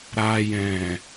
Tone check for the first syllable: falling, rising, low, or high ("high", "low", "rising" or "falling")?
low